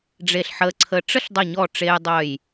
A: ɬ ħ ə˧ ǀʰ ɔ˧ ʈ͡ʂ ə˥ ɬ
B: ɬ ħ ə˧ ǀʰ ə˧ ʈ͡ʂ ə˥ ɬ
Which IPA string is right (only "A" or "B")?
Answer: B